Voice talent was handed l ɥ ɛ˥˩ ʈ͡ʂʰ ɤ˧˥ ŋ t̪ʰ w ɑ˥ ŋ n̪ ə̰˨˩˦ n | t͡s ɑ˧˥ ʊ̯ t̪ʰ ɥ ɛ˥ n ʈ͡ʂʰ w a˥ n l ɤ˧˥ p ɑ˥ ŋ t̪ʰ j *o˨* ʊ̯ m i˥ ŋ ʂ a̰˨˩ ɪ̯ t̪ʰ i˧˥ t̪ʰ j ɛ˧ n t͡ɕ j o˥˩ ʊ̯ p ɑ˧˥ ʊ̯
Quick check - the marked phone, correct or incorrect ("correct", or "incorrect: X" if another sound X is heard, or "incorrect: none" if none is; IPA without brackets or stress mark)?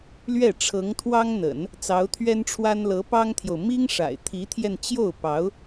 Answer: correct